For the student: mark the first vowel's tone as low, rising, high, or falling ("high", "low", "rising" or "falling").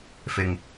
low